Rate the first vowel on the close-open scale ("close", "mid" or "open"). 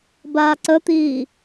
open